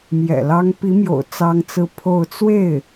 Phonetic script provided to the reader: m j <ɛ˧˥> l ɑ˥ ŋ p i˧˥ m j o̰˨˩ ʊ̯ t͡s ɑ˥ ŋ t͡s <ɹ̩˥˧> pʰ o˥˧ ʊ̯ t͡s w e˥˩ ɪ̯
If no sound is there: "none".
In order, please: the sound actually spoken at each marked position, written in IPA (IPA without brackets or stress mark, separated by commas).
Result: ɛ̰˨˩, ɹ̩˥